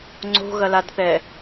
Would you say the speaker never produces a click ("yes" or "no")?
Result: no